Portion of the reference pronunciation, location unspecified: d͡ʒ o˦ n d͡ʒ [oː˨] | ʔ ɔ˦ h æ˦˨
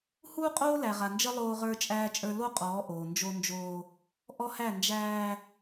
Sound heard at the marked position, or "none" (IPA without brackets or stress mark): oː˦